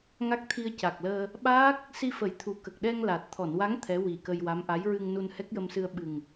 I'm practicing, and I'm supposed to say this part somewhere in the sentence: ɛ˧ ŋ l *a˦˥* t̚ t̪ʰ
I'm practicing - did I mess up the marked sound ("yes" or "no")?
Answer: yes